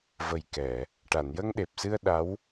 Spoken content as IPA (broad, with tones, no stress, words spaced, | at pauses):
və˨˩jkɛ˨˩˨ | ʈa˨˩˨njə˧ŋɗe˨˩p̚sɨ˧ə̯ ɗa˧˥w